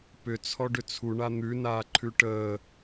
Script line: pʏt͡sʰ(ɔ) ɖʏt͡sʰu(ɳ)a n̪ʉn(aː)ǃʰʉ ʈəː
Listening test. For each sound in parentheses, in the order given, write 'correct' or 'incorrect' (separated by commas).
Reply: correct, correct, correct